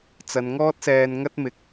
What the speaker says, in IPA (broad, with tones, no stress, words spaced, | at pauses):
t͡sɐ˨˧n ŋɔː˥t̚sɛː˧nŋɐ˥t̚mɪ˨k̚